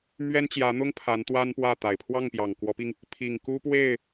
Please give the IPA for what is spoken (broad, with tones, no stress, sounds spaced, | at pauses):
m ɥ ɛ˥ n t͡ɕ j ä˧˥ n̪ ʊ˥ ŋ pʰ a˧˥ n t̪ w a˥ n p w ä˥˩ t̪ a˨˩ ɪ̯ pʰ w ɑ˥˩ ŋ p j ɑ˨˩ ŋ k w ɔ˧˥ p i˧ ŋ | pʰ i˨˩ ŋ k u˥ p w e˥˩ ɪ̯